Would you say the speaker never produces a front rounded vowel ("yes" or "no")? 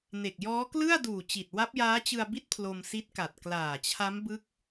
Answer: yes